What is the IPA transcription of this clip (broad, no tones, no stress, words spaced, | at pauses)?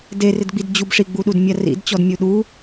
derɪdɡ͡bid d͡ʑubʂiɡ͡buɗud mʲarḭdt͡ɕɔd mʲuɗu